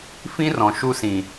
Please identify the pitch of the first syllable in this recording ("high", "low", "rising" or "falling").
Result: high